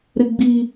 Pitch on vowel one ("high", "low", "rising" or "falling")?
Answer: high